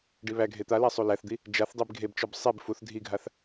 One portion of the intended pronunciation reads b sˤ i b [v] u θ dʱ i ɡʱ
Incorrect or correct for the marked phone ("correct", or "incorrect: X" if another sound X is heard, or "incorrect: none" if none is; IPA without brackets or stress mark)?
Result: incorrect: f